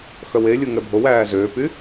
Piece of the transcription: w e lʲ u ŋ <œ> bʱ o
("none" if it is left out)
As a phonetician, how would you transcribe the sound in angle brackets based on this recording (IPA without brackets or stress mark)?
ɛ